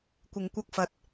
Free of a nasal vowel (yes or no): yes